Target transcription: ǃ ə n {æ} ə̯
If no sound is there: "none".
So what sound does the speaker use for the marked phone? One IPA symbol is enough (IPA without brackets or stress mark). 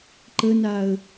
a